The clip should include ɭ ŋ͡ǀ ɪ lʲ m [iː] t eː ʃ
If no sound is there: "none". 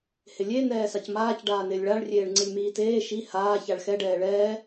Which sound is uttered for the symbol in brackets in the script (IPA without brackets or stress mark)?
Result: iː